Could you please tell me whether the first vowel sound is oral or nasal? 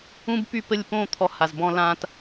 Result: nasal